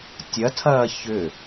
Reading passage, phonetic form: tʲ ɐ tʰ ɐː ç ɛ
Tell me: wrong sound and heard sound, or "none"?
ɛ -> ʏ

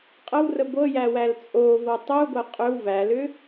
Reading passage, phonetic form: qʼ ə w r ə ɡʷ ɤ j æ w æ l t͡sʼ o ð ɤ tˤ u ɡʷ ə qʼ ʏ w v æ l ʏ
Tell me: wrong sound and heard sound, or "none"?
ð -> v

